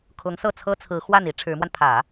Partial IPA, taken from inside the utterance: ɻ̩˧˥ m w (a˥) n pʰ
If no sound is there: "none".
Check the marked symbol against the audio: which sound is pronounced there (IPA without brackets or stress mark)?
a˧